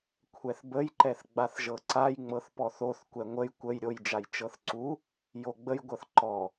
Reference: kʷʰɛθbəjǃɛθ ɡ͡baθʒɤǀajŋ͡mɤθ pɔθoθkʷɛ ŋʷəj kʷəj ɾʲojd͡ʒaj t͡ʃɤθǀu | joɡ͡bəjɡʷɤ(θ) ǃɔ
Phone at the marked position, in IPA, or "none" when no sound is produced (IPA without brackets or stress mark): θ